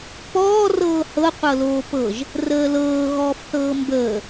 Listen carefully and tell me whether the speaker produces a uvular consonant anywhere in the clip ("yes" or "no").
yes